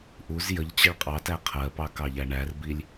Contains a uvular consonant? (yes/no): yes